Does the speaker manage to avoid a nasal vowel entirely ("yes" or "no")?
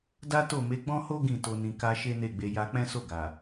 no